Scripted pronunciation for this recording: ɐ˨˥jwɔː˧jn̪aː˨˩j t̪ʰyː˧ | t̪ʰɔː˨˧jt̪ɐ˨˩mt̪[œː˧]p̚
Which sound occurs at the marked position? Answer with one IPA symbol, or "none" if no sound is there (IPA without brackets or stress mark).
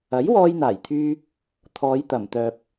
œː˨